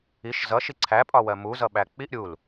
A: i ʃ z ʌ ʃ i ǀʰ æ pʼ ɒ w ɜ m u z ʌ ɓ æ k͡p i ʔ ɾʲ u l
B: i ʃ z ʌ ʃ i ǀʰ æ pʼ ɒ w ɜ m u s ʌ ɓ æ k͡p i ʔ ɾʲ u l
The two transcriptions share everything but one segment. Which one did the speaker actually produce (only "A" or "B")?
A